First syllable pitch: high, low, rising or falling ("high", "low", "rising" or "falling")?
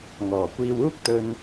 low